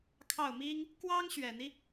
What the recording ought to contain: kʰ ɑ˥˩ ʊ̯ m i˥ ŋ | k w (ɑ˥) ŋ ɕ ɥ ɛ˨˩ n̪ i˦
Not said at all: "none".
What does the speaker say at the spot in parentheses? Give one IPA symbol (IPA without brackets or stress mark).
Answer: ɑ˥